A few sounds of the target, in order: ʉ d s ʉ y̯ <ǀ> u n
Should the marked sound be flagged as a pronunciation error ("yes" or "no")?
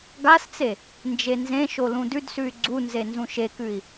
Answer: yes